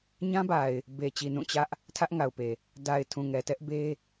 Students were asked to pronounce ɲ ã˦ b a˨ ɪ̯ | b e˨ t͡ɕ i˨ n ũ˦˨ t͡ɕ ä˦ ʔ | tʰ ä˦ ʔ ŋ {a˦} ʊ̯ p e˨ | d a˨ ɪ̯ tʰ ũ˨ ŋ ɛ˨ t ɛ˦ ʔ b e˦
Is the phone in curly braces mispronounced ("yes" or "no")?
yes